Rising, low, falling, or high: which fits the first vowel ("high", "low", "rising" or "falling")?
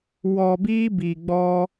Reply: low